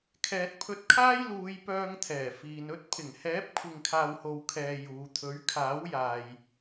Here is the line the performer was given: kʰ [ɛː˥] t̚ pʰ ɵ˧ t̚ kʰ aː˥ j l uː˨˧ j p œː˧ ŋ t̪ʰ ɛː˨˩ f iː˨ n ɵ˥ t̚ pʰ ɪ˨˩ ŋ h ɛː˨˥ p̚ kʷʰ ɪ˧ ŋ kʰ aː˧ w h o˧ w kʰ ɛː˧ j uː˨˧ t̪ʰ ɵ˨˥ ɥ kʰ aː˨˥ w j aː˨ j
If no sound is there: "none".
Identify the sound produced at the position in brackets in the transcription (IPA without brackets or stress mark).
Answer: ɛː˨